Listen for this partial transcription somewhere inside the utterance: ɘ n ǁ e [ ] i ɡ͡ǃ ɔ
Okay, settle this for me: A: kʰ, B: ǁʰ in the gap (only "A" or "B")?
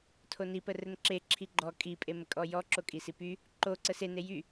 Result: B